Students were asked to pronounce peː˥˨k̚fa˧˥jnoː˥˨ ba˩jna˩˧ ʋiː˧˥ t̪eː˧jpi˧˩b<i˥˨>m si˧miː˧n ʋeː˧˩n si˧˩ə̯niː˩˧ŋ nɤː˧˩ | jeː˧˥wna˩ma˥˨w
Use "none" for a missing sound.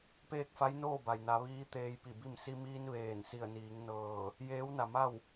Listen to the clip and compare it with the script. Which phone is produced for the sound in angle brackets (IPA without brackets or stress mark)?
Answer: i˥˨